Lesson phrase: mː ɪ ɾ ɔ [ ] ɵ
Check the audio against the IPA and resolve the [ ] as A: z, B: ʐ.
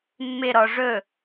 B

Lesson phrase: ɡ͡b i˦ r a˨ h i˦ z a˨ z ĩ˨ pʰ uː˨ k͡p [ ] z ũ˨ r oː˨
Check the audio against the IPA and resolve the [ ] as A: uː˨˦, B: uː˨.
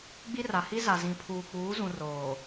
A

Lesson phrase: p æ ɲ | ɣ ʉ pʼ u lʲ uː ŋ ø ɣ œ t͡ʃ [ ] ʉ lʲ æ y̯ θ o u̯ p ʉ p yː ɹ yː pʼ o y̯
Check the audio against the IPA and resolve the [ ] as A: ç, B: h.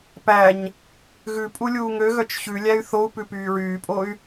A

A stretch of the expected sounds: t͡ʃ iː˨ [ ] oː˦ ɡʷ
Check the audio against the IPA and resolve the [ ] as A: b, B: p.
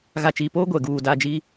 B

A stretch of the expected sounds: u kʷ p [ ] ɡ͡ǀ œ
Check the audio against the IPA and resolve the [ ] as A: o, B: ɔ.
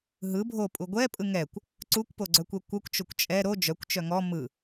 A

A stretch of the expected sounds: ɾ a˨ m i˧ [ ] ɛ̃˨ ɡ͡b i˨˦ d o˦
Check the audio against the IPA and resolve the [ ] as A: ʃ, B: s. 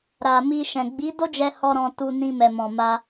A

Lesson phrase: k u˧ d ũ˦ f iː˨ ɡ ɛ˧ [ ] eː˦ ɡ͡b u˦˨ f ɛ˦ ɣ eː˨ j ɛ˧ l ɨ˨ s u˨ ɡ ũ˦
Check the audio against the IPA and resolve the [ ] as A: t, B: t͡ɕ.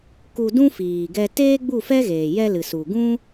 A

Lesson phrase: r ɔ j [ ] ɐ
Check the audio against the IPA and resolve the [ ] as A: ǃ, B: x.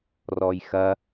B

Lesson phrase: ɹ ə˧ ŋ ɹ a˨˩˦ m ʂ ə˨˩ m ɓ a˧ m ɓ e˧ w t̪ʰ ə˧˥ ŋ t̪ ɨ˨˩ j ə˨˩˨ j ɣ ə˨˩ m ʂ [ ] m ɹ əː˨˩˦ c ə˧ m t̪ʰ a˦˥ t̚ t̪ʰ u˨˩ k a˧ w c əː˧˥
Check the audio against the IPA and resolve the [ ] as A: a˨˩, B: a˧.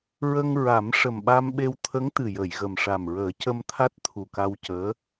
A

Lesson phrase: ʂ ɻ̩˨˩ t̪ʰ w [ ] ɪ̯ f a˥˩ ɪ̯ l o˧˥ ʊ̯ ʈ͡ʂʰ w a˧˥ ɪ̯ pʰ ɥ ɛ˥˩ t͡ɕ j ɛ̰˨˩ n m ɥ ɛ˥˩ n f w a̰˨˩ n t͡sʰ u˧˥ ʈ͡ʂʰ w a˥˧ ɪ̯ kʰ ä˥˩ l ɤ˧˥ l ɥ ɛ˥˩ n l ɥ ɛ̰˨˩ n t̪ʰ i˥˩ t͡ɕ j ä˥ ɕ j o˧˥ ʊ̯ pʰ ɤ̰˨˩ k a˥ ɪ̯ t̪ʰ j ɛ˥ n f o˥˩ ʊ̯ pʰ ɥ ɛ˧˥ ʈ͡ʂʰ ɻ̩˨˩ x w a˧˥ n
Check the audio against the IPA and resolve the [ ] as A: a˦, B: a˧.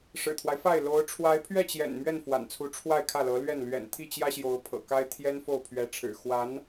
A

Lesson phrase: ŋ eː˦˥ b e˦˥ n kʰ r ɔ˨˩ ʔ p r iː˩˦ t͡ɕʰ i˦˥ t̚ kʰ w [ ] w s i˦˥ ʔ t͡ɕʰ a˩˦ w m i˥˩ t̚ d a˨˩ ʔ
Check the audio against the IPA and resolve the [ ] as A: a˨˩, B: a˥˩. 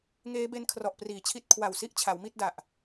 A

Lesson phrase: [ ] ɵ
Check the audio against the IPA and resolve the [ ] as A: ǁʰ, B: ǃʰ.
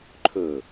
B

